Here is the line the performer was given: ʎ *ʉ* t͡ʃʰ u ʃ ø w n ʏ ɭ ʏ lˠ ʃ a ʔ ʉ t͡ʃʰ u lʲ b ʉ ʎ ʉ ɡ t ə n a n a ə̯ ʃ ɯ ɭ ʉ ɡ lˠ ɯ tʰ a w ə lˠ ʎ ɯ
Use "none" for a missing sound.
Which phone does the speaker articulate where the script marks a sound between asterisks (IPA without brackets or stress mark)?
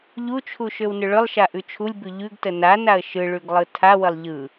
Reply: u